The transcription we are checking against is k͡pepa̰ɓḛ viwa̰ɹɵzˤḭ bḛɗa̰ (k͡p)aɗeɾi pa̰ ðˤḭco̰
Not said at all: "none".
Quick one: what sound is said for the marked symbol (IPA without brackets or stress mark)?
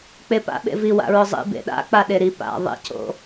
k͡p